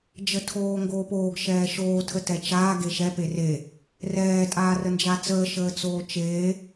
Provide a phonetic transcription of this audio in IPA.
d͡ʒətʰoːŋɡoːpoːɡ ʃɛːʃoː tʰətɛt͡ʃaː ɡeʃɛ pere | rɛː tʼaːrənd͡ʒat͡səː ʃəːt͡soːt͡ʃeː

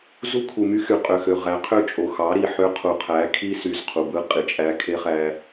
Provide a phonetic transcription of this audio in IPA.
zu˦kʰu˨my˦ xy˨ qʼø˨xø˨ ʁæ˨˦ qʰø˦ t͡ʃʼo˨xɑ˨˦ɾi˨ ħø˦ qʰu˨qʰæ˨˦ kʰi˦sy˨z qʰu˨bɯ˦ qʼi˨t͡ʃʼæ˦ kʰe˦χæ˦

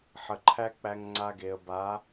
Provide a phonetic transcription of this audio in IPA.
ħə˨ǃʰæ˦ k͡pæ˧ŋŋ͡ǀa˧ɡe˨ə̯ ba˨˦

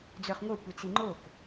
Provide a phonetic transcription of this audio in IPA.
d͡zœχŋʷœ kʷit͡siŋ͡ǃok

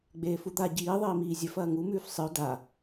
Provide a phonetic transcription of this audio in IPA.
ɡ͡beːfud̪a ɟiːðˤiːmiː zʲɵfɐː ŋumʉːf sˤɨo̯ da

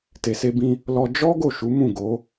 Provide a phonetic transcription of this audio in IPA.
te˨se˧bĩ˧ | lɔ˧ d͡ʒɔ˦ ɡo˦˨ʃu˨˦mũ˦˨ɡo˨˦

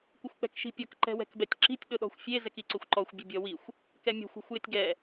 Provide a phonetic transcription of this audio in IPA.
kʷɪxʷk͡pɛ̤kʃi̤pʲɔk ǃɛ̤wɛ̤kbɛtʲǁi̤tʲ ɗʊɗɔ̤xʷfʲe zɛkiǀʊxʷǃɔxʷ bʲʊbʲɔwixʷ | kɛmʲɛ̤xʷ ɔ̤xʷjɪtʲɡɛ

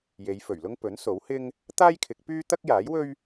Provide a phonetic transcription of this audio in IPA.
je˨˧jfɵ˨˩ɥlʊ˥ŋ pɵ˨˥n so˨˥whɪ˥ŋ | t̪aː˥jkʰɪ˨˥k̚ pyː˥ t̪ɐ˥k̚jaː˨˥jwɵ˥ɥ

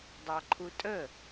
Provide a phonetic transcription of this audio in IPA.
dˤɑǃʰutʼə

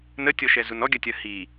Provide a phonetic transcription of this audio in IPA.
nətʲɔʃɛzun ɔɡʲɐtʲɐ hi

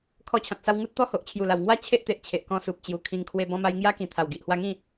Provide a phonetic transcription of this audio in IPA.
kʰɔ˧t͡ɕʰã˨t̚sa˧w ŋu˦t̚ t̪ɔ˦ho˨ʔ t͡ɕʰju˨˩la˨˩w ŋwa˥˧ t͡ɕʰe˦ʔt̪e˨ʔt͡ɕʰe˨ʔ kɔ̃˧ su˨p̚t͡ɕju˨˩ kʰĩ˧ŋkʰwe˧ bɔ̃˧ma˧j ŋja˦kĩ˨˩ t̪ʰa˨˩wɡi˨ʔhwa˧ŋĩ˥˧

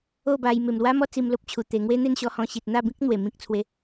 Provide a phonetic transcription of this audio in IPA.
o˥˧ba˧j me˨˩mlwa˦mɔ˦ t͡si˧mlo˦p̚t͡ɕʰu˨˩ t̪e˨˩ŋwe˦n̪e˥˧n ɕɔ˧hɔ̃˧ɕi˨t̚ n̪a˥˧bĩ˦k̚n̪we˨˩ mĩ˦k̚t͡sʰwe˧

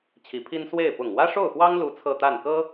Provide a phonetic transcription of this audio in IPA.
t͡ɕʰi˧˥pʰi˥n swe˥˩ɪ̯ pʊ˨˩ŋwä˥ʂo˥˩ʊ̯xwɑ˥ŋ lu˥t͡sʰɤ˥˧t̪a˥˩n kɤ˥

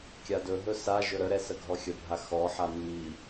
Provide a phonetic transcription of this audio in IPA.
kʲadɵɦɵ sa ʒɵɾəɾɛ səɡʱɔxʲəbʱa xɔħa mːi

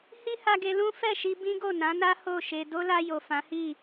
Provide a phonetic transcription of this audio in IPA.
hi˦ha˧ɡe˧ lũ˦ fɛ˦˨ʃi˧ bĩ˦ɡo˦˨nã˨˦na˦ ho˦˨ʃe˧ do˦la˧jo˨ fã˨˦hi˦˨

